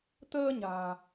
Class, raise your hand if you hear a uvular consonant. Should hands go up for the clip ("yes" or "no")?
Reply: no